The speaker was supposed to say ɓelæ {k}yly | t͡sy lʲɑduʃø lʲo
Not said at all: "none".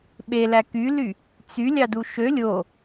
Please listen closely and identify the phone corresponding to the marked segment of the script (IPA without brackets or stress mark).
k